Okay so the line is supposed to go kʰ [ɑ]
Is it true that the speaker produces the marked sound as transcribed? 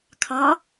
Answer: yes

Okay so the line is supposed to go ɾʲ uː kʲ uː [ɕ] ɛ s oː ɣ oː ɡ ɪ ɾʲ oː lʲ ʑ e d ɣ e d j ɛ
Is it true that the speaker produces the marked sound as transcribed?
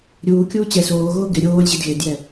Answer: no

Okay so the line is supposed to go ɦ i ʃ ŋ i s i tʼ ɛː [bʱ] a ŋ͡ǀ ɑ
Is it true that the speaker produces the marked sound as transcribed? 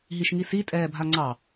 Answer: yes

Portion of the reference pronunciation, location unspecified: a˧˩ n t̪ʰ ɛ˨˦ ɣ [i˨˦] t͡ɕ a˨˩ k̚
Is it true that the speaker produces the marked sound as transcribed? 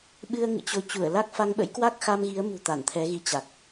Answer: yes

